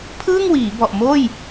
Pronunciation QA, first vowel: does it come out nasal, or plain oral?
oral